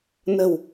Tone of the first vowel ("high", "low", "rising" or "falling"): low